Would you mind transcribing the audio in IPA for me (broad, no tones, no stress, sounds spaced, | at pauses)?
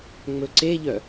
ŋ͡m ɵ ǀ e ʎ œ